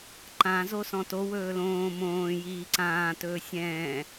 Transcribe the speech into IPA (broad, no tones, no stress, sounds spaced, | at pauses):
ǃ ã z o s ɔ̃ t o w ɵː l õː m õː j iː ǀ ãː t ɵː sʲ ɛ̃ː